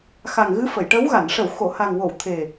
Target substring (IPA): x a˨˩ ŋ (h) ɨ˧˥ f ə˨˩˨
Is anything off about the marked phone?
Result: yes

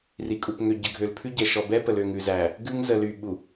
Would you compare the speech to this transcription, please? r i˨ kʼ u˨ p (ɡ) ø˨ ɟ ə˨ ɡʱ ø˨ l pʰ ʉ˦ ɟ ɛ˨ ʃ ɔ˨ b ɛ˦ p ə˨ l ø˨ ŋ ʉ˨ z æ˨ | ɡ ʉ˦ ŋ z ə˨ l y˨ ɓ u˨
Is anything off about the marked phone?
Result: yes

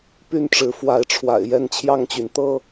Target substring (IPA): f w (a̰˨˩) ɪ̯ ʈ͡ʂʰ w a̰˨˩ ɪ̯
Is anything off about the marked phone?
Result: yes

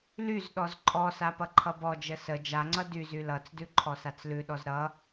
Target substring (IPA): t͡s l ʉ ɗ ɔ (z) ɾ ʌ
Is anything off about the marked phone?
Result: no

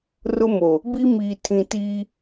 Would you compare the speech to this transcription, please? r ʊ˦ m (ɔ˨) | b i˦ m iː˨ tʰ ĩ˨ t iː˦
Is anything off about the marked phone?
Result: yes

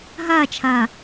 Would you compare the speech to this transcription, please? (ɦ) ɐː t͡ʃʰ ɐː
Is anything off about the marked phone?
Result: no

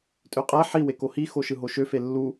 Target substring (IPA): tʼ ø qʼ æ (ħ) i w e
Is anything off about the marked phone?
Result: no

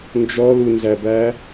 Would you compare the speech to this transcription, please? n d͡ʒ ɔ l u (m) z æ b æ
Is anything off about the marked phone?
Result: yes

